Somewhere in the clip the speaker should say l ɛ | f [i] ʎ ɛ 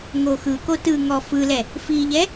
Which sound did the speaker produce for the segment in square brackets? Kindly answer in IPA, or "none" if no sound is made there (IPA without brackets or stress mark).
i